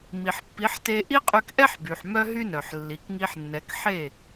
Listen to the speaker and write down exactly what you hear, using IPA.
m i˩ ħ pː i˩˥ ħ t e˧ ʔ i˥ qʼ y˧ k ʔ ɛ˥ ħ b y˩ ħ m œ˥ ɦ y˥ n œ˩ ħ lː i˩ k ŋ i˧ ħ nː ɛ˩˥ k ħ e˥˩

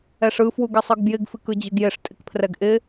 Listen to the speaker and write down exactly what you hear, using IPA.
ɛ ʂ ɯ f w u ɡ ɪ sˤ ɯ ɡ b j ɪ ɡ f ɨ k ɯ d͡ʑ ɯ ɡ j ɪ ʂ tʼ ɪ k pʰ r ɛ ɡ ʔ ɪ

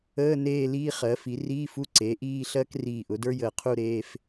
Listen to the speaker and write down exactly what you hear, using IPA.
əː˧˥˧ n eː˥˧ l iː˥ χ ɜ˩˥ f i˩˥ r iː˧˥˧ f u˧˥˧ ǀ eː˩˥ ʔ iː˥˧ ɬ ɜ˥ k r iː˧˩ ʔ ʊ˩˥ d ə˞˥ j əː˧˩ qʰ u˥˧ ɾ eː˧˥˧ f

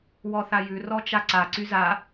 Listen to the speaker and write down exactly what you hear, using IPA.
w ɔ θ a j ʉ r ɔ t͡ʃ a ǀ a ǀ y z a

